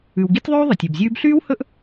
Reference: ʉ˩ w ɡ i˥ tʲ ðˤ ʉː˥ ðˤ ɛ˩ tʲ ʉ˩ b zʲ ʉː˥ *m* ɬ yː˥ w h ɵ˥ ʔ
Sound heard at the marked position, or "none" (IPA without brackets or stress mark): b